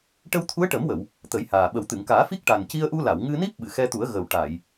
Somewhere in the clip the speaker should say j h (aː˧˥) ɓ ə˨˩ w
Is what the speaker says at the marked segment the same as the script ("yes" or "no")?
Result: no